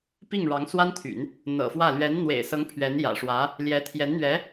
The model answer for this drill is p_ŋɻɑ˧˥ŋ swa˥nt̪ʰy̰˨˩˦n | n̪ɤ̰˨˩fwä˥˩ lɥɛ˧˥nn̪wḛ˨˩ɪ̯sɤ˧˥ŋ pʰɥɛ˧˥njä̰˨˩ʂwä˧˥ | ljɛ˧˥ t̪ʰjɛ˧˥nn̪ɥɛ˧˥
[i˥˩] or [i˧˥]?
i˥˩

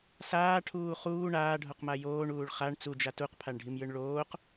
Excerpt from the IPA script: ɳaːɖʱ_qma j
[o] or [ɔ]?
o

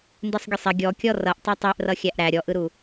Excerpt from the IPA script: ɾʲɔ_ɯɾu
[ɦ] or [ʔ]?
ʔ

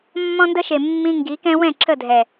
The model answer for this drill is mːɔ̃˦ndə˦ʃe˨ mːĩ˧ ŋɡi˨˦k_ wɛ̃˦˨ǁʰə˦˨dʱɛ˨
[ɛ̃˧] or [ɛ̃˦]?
ɛ̃˦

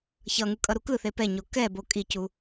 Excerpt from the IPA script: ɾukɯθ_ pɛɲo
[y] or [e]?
e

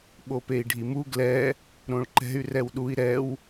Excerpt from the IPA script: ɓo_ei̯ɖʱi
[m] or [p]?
p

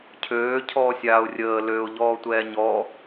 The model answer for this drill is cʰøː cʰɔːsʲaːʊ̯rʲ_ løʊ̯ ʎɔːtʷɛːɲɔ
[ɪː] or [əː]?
əː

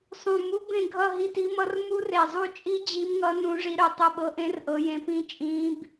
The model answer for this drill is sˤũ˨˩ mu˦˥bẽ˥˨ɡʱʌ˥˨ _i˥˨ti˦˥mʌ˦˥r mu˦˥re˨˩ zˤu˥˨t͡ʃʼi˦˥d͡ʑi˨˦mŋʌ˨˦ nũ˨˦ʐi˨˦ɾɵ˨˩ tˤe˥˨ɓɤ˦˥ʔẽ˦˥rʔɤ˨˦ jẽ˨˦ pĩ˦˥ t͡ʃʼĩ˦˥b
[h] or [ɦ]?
ɦ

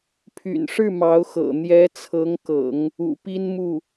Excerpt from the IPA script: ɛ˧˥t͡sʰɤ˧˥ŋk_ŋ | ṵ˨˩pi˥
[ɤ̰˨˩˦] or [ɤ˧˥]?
ɤ̰˨˩˦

